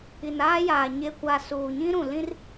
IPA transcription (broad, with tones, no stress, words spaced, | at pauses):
i˨naː˦jaː˨ ɲe˨kʷa˨ suː˨ɲĩ˦ɾũ˨ lĩ˦r